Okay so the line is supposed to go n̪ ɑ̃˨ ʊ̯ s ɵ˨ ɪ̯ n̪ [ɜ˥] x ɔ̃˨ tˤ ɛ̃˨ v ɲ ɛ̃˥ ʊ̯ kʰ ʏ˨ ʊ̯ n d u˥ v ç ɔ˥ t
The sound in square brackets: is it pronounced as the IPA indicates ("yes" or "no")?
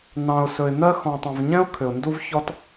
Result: yes